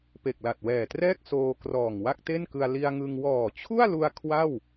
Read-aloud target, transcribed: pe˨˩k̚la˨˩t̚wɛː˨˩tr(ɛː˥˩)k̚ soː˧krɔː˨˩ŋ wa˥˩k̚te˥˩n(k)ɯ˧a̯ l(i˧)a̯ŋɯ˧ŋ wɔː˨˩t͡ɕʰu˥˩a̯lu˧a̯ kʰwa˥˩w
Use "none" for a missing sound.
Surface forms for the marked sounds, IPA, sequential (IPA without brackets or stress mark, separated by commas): ɛː˥˩, k, i˧